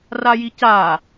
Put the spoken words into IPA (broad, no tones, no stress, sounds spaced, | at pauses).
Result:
r a j i c a